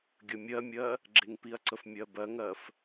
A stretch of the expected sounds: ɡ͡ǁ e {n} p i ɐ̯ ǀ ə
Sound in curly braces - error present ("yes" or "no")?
yes